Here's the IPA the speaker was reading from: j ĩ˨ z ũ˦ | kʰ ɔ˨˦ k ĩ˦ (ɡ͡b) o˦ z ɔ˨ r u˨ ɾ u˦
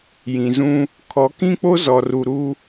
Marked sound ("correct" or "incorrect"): incorrect